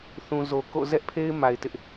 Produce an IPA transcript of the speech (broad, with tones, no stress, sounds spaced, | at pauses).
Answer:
θ ũ˨ z o˨ k o̰˦˨ z ɛ˦ ʔ pʰ e˦ ɪ̯ m a˨ ɪ̯ t ɪ˦ ʔ